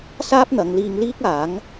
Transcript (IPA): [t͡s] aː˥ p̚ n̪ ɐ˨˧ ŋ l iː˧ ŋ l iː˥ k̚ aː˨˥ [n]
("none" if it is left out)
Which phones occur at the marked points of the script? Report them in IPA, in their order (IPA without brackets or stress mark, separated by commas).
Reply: s, ŋ